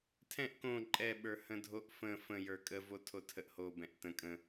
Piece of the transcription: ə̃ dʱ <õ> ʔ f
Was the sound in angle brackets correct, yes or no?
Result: no